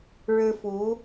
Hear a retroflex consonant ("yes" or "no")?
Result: yes